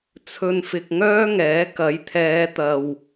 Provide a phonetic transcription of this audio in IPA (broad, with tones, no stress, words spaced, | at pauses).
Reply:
t͡sʰɵ˧nfɪ˧k̚ŋœː˥ŋɛː˨˥ kɐ˨˥jt̪ʰɛː˨˧t̪ɐ˨w